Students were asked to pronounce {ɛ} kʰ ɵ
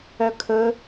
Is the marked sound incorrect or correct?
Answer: incorrect